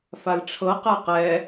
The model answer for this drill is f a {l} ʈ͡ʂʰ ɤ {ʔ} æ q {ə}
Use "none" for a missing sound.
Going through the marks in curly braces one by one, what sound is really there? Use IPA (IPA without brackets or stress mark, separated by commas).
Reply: l, q, ɛ